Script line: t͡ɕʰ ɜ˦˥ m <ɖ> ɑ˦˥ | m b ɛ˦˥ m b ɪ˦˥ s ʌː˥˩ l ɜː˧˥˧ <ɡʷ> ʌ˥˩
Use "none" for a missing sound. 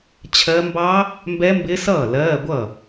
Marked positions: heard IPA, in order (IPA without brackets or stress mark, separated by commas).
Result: b, ɡʷ